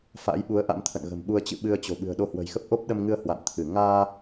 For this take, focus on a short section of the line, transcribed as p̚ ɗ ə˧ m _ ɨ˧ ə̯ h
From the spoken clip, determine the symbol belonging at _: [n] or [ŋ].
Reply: ŋ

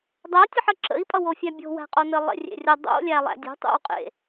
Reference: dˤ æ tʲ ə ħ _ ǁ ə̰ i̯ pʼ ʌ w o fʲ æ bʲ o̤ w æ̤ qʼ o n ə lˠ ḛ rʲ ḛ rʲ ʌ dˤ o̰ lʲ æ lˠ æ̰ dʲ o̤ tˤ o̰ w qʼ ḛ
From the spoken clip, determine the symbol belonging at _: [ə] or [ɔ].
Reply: ə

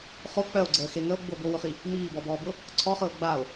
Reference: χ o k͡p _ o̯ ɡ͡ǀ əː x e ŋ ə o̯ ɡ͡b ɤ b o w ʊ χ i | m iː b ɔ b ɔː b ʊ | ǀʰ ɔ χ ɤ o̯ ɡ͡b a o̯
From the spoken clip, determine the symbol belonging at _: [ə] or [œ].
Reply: œ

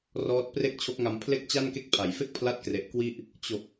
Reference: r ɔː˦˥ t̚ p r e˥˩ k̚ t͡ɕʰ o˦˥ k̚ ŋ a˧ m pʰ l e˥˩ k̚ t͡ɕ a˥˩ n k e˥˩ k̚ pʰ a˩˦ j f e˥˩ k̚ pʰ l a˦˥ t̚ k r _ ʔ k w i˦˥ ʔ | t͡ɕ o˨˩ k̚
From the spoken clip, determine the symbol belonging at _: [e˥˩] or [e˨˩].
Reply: e˨˩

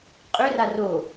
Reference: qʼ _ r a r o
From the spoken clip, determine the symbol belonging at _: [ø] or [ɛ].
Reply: ø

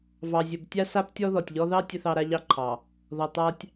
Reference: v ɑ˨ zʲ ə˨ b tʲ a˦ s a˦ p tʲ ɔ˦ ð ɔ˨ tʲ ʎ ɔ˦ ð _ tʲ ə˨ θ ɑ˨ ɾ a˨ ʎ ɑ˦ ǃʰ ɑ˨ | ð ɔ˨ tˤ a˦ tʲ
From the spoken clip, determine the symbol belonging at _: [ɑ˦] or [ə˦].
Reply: ɑ˦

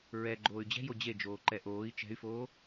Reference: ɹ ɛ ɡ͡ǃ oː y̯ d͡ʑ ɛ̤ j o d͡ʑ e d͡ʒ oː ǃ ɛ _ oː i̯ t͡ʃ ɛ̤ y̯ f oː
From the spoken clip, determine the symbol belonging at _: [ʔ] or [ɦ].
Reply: ʔ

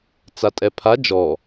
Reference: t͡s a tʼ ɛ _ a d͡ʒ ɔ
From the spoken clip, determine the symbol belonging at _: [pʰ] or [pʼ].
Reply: pʰ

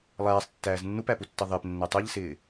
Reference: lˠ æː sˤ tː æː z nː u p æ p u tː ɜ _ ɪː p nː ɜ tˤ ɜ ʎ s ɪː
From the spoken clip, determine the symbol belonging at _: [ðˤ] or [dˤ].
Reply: ðˤ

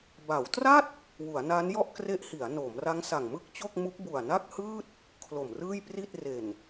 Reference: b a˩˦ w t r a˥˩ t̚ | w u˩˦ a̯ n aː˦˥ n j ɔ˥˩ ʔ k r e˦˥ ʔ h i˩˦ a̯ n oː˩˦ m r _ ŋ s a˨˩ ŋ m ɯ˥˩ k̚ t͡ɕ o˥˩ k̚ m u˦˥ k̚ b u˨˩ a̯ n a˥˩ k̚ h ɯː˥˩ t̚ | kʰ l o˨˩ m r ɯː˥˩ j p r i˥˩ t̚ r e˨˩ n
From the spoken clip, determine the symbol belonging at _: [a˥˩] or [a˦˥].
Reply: a˦˥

